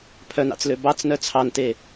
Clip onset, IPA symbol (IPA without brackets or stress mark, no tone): pʰ